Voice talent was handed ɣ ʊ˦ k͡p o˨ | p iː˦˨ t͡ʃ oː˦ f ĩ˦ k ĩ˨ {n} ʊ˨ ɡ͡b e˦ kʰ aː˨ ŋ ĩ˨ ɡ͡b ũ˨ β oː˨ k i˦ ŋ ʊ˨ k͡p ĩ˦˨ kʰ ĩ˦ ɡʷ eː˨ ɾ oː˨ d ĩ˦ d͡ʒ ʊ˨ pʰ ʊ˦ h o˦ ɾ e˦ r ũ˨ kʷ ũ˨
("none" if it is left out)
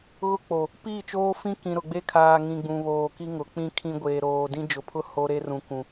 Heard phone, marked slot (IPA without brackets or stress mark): ɾ